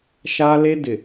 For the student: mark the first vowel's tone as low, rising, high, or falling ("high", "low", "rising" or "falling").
high